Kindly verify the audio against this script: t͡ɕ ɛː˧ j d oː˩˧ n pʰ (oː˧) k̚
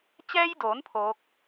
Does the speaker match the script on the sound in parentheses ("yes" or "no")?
no